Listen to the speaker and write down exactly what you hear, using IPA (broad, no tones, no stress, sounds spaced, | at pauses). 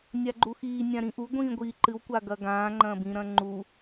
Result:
nʲ a ɡ͡ǃ u x iː nʲ ã ɾ ĩ ʔ u ɡʷ ĩː ɡʷ iː ǃ ɨ w kʷ a ɡ ɐ ɡ ãː ŋ͡ǃ ɐ̃ b ĩ ɾ ɐ̃ ŋ͡ǃ u